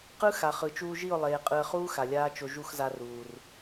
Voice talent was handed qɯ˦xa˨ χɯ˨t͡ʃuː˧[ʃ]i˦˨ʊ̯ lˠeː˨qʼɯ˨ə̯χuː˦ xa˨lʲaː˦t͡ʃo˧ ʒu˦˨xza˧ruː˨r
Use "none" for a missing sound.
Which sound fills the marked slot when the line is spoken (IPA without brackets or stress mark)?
ʒ